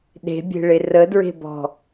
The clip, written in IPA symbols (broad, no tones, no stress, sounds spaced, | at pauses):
ɗ e̤ bʲ e̤ ɭ e r ə d ɹ e̤ b ɔ̤